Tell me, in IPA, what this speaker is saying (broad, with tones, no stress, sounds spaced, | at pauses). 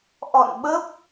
ʔ ɔ̰˧˨ n ɓ ə˦˥ p̚